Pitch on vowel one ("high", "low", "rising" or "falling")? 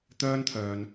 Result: high